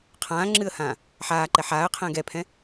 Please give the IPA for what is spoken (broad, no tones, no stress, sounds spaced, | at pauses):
qʰ ãː ŋ͡ǁ ɨː ə̯ h ãː | ħ aː ǃ ɛ ħ aː ə̯ qʰ ɛ̃ː ɡ ɛ pʰ ɛ̃